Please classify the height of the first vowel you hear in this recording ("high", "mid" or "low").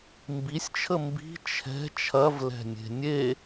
high